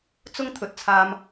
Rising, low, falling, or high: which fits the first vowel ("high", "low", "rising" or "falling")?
high